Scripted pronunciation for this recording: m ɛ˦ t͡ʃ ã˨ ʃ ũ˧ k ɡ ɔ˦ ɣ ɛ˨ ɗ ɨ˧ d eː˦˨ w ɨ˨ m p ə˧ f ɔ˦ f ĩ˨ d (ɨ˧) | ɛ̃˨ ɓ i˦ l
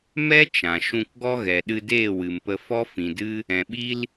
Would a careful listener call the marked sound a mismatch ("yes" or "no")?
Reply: yes